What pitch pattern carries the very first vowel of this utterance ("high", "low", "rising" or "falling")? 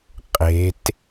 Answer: rising